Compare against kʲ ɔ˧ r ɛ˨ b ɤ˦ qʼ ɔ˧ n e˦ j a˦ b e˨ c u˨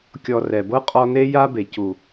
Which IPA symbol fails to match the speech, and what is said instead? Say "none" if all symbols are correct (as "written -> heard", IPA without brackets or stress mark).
none